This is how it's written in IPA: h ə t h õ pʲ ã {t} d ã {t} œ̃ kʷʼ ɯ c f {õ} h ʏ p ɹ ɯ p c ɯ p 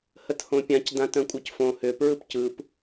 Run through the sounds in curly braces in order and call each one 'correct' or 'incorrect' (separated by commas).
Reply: incorrect, correct, correct